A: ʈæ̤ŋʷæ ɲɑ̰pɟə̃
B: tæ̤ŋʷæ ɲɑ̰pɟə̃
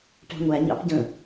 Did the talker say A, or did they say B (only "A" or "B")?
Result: A